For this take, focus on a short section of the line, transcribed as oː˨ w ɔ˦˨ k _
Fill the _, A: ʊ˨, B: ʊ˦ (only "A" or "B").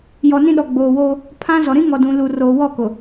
A